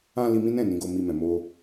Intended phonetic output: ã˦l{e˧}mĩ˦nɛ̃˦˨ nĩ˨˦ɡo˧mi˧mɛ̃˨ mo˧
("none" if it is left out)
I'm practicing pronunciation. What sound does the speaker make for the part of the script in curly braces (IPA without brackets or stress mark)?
i˧